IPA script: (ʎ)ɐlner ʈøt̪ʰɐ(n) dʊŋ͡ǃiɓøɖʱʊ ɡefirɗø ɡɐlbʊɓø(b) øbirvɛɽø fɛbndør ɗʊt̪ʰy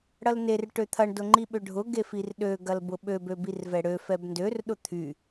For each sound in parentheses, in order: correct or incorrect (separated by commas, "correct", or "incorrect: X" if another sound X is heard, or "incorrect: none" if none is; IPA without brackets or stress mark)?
incorrect: ɽ, incorrect: ɳ, correct